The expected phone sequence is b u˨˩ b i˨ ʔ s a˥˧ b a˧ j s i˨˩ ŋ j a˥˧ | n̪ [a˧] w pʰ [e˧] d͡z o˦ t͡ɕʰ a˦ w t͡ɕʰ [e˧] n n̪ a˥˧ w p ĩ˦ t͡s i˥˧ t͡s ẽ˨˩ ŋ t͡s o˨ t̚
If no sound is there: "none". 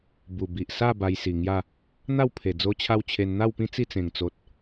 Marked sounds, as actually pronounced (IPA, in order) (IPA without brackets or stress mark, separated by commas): a˥˧, e˨˩, e˧